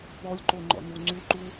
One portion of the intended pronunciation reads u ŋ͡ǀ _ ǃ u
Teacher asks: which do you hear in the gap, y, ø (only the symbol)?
y